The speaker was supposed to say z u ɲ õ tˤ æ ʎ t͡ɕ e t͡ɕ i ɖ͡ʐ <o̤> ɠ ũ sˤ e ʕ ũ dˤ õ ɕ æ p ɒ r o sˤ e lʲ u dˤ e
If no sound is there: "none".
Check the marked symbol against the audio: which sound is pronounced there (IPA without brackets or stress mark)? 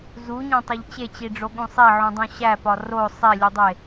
o